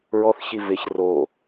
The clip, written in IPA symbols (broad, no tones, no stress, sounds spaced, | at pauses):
ɹ ɔ θ ç i v ɪ ç r o